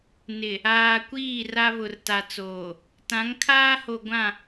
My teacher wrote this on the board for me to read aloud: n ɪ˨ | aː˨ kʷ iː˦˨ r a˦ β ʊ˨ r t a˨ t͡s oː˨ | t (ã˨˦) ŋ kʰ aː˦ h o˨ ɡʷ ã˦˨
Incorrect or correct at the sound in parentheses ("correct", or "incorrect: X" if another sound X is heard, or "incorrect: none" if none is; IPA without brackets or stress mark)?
correct